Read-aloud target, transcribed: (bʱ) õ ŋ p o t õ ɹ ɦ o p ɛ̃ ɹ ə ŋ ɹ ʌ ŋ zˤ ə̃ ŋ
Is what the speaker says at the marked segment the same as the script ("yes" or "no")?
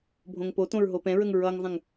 yes